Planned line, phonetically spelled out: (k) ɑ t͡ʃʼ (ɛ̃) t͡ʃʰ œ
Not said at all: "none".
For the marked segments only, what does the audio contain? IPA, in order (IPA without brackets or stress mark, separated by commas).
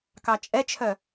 k, ɛ